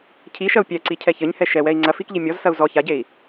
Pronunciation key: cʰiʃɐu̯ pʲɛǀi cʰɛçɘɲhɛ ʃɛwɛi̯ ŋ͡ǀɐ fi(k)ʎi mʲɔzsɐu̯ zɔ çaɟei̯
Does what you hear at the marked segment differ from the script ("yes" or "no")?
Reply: no